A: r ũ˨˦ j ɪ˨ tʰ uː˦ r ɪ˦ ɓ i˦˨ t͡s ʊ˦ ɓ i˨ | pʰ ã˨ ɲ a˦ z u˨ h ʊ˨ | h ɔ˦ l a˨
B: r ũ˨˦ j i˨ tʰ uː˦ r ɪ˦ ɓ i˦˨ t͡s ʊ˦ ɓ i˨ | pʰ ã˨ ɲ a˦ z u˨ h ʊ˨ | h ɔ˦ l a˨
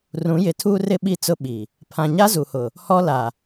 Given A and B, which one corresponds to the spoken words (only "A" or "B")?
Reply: A